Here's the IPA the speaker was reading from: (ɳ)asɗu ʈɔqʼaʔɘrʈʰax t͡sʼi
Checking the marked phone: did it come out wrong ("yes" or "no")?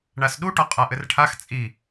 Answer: no